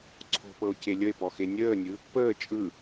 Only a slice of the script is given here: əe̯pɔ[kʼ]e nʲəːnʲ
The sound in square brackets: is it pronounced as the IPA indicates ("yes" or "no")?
no